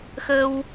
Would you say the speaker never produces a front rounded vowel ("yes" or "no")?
yes